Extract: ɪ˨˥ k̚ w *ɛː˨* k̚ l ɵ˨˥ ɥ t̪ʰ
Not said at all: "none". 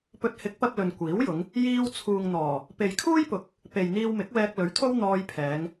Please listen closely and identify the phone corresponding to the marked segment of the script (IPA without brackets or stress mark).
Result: ɛː˧